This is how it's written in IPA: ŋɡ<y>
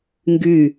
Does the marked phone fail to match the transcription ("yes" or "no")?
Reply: no